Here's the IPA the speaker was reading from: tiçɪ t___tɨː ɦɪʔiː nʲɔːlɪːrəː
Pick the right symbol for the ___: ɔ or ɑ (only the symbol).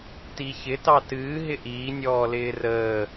ɑ